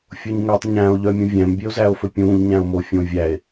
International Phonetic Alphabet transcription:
fʲ o ɲ ŋ ø tˤ ɲ æ̃ o̯ ʎ œ mʲ õ vʲ æ̃ m bʲ e o̯ z æ o̯ f ɵ pʲ ũː ʎ ɲ æ̃ o̯ m o fʲ õ vʲ æ e̯

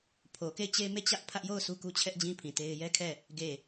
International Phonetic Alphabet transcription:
pʰ o˨ k e˦˨ ɪ̯ t͡ɕ e˦ m e˦˨ t͡ɕ ä˦ ʔ pʰ ä˦ ʔ j o˦˨ ʊ̯ s u˦ k u˦ t͡ɕʰ ɛ˦ ʔ d͡ʑ ĩ˦ pʰ ĩ˨ t e˦ ɪ̯ j ɛ˦ kʰ ɛ˦˨ | ɡ e˦˨

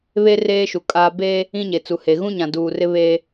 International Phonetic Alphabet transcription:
β e˦ r eː˦ ʃ u˨ kʼ aː˦ b e˦ | ĩ˦ ɲ e˨ t͡s u˨ h e˨ ɣ ũ˦ ɲ ã˨ d uː˨ r ɪ˦ β e˦

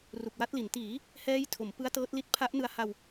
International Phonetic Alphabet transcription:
r u˨˩ k̚ w a˦˥ t̚ l i˩˦ n t iː˩˦ | h ɛː˦˥ j tʰ o˩˦ m p ɯ˦˥ a̯ t ɤː˦˥ t̚ l i˦˥ t̚ pʰ a˦˥ ʔ n ɯ˧ a̯ h a˧ w

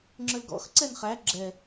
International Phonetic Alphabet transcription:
ŋ͡ǁ ə˞ l ɡ ɔ̰ x ǀ ɛ n χ æ ɡ͡ǁ ɛ

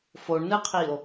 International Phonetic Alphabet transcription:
f o ɳ n ɨ qʰ iː o̯

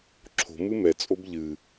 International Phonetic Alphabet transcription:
ǁʰ o̤ m ɨ m ɛ t͡sʼ o b ʎ ɨ

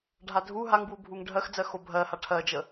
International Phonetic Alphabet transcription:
ɖʱ a dʱ u ɦ a ŋ b w u bʱ u ŋ ɖʱ ɜ x d͡z ɜ x o bʱ ɜ h a ʈʰ ɜ d͡ʒ ə

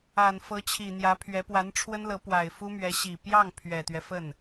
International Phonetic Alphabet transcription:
a˨˩ n f ɤ˧˥ t͡ɕʰ i˨˩ n̪ j ä˧˥ pʰ ɥ ɛ˧˥ p w a˧˥ n ʈ͡ʂʰ w ə˥ n l ɤ˧˥ p w a˨˩ ɪ̯ f u˥ m ɥ ɛ˧˥ ɕ i˨˩ p j ɑ˥˩ ŋ pʰ ɥ ɛ˨˩ t̪ ɥ ɛ˦ f ə˥˩ n

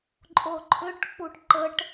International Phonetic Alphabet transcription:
ǃʼ o ǃʰ ʏ ʈ k͡p u ʈ ǃ ə ʈ

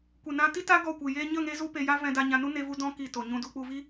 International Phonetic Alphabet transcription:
kʷ e˨ n ã˧ t i˦ t a˦ ɡ ɔ˦˨ kʷ ɨ˨ j e˦ ɲ ə˦˨ ŋ e˧ z u˧ p e˧ j a˦ v ɛ̃˧ d a˧ ɲ ã˧ n u˦ n e˦ v u˦ d ɔ̃˦ k i˨ t o˨ ɲ ũ˧ d u˧ k͡p u˧ v i˦

